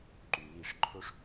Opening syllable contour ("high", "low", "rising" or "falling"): low